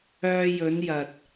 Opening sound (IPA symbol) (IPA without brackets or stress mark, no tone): œː